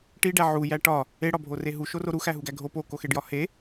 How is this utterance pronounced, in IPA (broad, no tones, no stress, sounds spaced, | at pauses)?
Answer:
ʈ i ɖ æ ʕ u j æ ʈ ɒ | e ɽ ɒ bʱ o r e ɦ u ʃ o r o ɾ u x æ ɦ u ɡ æ ɡʱ o p o k o x e ɖ j ɒ h e